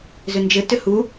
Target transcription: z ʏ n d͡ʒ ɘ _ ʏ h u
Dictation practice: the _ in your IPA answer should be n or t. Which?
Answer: t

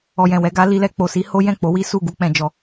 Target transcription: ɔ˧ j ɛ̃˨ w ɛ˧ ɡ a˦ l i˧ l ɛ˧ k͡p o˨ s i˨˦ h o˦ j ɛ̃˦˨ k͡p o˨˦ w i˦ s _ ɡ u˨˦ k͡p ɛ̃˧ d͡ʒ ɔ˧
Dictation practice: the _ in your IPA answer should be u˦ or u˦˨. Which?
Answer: u˦˨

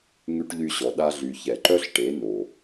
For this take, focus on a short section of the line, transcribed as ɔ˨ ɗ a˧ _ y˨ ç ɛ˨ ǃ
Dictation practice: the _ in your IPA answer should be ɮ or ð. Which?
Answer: ɮ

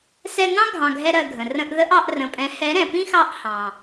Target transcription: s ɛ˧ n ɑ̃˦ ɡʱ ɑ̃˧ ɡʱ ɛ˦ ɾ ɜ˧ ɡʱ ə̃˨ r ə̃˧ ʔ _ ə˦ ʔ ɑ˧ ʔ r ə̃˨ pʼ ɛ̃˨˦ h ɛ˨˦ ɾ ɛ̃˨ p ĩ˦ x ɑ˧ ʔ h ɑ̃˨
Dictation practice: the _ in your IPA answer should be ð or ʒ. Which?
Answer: ð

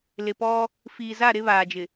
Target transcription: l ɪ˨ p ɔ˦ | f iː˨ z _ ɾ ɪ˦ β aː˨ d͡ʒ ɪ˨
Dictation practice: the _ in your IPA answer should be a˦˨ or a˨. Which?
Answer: a˦˨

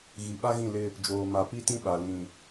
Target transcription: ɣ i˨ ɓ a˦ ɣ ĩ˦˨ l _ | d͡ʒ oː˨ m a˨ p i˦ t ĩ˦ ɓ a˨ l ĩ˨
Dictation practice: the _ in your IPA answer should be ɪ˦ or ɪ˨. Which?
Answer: ɪ˦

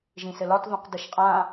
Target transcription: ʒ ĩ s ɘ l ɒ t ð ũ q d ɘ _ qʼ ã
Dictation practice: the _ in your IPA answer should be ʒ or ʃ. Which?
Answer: ʃ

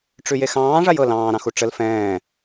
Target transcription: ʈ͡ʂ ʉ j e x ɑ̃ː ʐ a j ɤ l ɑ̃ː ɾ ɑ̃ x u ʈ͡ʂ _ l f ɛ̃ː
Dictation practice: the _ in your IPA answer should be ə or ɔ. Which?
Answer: ə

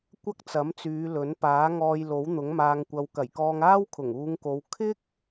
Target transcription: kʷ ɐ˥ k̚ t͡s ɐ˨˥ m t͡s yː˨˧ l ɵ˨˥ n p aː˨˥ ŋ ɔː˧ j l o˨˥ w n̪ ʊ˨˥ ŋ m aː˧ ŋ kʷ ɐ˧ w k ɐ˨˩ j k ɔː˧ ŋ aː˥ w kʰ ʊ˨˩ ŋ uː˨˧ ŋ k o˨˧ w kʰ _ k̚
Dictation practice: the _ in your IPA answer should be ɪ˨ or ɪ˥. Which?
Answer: ɪ˥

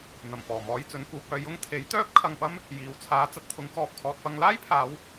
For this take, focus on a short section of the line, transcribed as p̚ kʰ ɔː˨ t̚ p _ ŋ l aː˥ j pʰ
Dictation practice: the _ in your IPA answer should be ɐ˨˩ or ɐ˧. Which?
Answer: ɐ˧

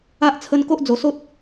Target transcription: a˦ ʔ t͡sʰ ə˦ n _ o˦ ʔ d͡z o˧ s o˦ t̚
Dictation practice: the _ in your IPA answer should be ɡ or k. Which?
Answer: k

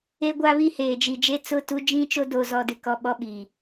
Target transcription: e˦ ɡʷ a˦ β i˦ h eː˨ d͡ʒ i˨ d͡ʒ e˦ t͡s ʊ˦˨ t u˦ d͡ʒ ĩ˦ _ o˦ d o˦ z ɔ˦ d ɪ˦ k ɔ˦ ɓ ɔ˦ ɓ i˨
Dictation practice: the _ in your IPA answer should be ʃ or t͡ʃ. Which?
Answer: t͡ʃ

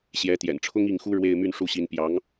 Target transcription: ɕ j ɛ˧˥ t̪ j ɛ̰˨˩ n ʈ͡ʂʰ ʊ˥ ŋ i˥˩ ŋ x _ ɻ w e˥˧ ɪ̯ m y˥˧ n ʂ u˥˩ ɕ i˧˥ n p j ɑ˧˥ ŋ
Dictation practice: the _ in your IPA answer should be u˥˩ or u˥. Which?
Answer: u˥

